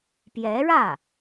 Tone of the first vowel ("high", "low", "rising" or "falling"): rising